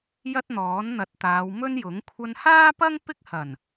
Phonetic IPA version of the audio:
jɐ˥t̚n̪ɔː˨˥n n̪ɐ˨˥t̚t̪aː˨˧wmɵ˥njʊ˨˥ŋ kʷʰɐ˧nhaː˥pɐ˥ŋ pɪ˥k̚hɐ˨˩n

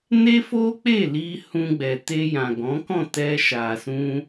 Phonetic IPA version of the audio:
ne˦fo˦k͡pe˦˨ li˧ hũ˧ɡ͡bɛ˨te˧jã˨ ɡɔ̃˨˦kɔ̃˦˨ tɛ˧ʃa˨sũ˧

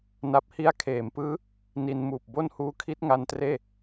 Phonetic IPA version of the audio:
na˨˩p̚hi˧a̯kʰeː˩˦mpɯː˦˥ | ni˧nmuː˨˩p̚bo˥˩n huː˦˥kʰi˦˥t̚ ŋa˧ntreː˥˩

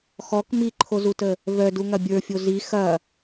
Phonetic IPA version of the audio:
xɔk miǃʰozutə | vœduŋɐ bʲə˞fʲo zi xɐ

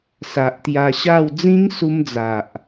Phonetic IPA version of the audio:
sa˨ʔt̪ja˧ɕa˥˧w d͡zĩ˦ŋsu˧md͡za˨ʔ

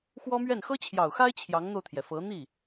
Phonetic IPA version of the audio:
xwɔ˥mɥɛ˥˩n xɤ˥t͡ɕʰjɑ˨˩ʊ̯xa˥ɪ̯ t͡ɕʰjɑ˧˥ŋn̪o˧ʊ̯t̪ʰjɛ˩ fɤ˧˥ n̪i˥˩

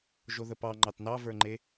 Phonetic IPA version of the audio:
ʒoðəpɑ ŋ͡ǃɑtnɑvə˞ŋ͡ǃe

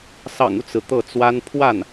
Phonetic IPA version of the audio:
sɑ̰˨˩ŋu˦t͡sɹ̩˩ t̪ɤ˥˩t͡swa˥n pʰwa˥˩n

